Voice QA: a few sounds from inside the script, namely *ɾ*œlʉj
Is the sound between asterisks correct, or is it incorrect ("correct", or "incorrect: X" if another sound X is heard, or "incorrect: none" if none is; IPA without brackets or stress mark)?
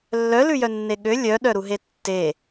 incorrect: lː